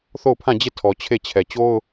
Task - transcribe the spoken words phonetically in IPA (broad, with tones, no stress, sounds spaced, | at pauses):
θ o˦˨ ʊ̯ pʰ ã˦˨ d͡ʑ e˦˨ tʰ ɔ˨ t͡ɕʰ e˦˨ t͡ɕʰ ɛ˨ t͡ɕ o˦ ʊ̯